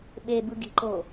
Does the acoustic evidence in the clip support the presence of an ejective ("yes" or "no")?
no